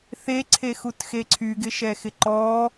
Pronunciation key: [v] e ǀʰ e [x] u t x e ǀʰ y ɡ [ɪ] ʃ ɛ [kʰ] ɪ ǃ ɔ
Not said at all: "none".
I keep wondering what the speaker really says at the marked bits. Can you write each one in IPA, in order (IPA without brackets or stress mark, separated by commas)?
θ, x, ɪ, x